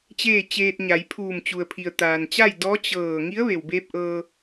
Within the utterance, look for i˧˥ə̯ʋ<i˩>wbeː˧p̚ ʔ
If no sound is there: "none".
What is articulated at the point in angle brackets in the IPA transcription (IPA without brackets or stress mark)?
e˩